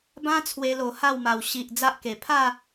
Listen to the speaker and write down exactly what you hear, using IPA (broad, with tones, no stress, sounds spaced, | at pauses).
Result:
b ã˦ t͡sʰ w e˧ l o˨˩ h a˥˧ w m a˨˩ w ɕ i˨ ʔ d͡z a˦ ʔ k e˨˩ pʰ a˥˧